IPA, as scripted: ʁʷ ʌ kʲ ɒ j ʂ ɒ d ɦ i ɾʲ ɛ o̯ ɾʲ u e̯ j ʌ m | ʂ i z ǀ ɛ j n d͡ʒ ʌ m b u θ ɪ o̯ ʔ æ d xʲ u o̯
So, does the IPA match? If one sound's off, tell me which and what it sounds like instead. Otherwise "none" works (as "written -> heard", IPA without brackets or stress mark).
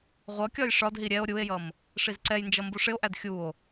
θ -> ʂ